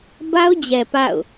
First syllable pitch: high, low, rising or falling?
high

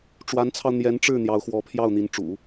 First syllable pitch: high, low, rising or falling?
rising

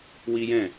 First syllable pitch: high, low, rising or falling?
high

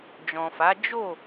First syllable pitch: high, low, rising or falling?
low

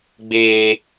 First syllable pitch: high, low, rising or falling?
high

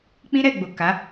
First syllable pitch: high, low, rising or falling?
high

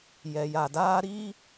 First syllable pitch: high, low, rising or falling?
low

